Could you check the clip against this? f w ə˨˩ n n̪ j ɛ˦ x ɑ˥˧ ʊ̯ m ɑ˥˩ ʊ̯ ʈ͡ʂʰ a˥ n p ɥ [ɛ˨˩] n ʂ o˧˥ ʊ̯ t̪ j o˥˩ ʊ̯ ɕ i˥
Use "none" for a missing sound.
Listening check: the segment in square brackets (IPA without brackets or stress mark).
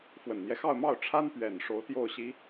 ɛ˨˩